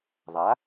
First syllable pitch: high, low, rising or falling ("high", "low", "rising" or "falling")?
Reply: rising